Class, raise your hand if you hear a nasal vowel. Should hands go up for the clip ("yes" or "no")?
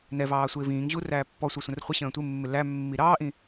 yes